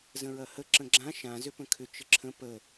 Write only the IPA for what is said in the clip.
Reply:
zə̃ɹɐhə ǁə̃ɡ͡ǁã ʃã zʏpə̃kʰʏ t͡ʃəǁʰə̃ pə

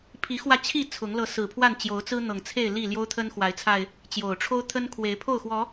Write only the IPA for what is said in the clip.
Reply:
pʰi˨˦xwä˧ t͡ɕʰi˥˨ t͡sʰʊ˨˦ŋ lɤ˨˦sɹ̩˨˩pʰwa˥˨n t͡ɕjo˨˦ʊ̯t͡sɹ̩˦n̪ɤ˨˩ŋt͡sʰe˥˨ɪ̯ li˥˨ ljo˦ʊ̯t̪ʰə˦nxwa˨˦ɪ̯t͡sʰa˧ɪ̯ | t͡ɕjo˨˩ʊ̯ʈ͡ʂʰo˦ʊ̯t̪ʰə˦n kʰwe˨˦ɪ̯pʰo˥˨ʊ̯xwɔ˨˦

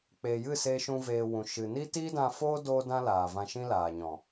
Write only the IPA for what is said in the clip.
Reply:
k͡peː˨jɨ˦˨ seː˦ʃũ˦veː˧wũ˨ ʃɨ˨ ni˦ tiː˦dã˧foː˦ doː˦dã˦laː˨ vã˧ʃĩ˦laː˨ɲɔ̃˨

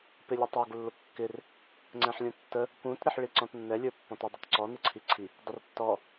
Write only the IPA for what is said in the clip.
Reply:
pɪlʲətˤə˞ɡ lːʊkːɪr | ŋ͡ǀɛ̃ħlʲũtːə | pũt ɾɪħɭiǀɔ̃tnːɛ lʲə˞pːɔ̃tə dˤʌtǀɔ nɪǀʰiǀʰi | dˤɪrtːɔ

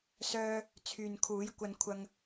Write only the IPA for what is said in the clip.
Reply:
sœː˧ | t͡sʰyː˨nkʰuː˨˥jkʷɐ˧n kʷʰɐ˧ŋ

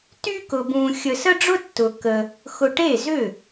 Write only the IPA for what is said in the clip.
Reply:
ty˥kʊ˧bũ˧ xʲə˧sə˥ɖ͡ʐʊ˥ tːʊ˧ kə˧ | xʊ˧ʈe˥˩zʏ˥˩

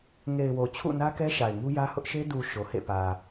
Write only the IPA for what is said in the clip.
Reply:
ŋe˨ɪ̯ wo˨t͡ɕʰṵ˦˨nä˦ kɛ˦ʃa˨ɪ̯ŋu˦jä˦ hʊ˦ʔʃe˦ du˨ ʃo˨hḛ˦˨ pä˨

